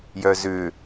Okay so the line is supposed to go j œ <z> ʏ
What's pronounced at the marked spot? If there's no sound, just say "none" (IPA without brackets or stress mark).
z